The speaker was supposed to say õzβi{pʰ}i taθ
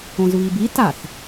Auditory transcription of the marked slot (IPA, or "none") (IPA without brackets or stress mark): b